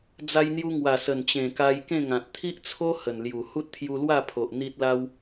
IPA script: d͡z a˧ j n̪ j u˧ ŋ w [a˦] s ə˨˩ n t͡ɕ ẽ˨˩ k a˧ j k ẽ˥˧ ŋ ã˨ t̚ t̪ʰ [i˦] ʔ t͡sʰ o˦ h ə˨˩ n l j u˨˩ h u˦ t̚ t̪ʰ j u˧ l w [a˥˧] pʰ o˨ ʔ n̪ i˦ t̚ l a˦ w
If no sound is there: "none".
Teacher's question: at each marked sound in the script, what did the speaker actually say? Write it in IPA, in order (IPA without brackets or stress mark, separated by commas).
a˨˩, i˦, a˥˧